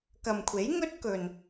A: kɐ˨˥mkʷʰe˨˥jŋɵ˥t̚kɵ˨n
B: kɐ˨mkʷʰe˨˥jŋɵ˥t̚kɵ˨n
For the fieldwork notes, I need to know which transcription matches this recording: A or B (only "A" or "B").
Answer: B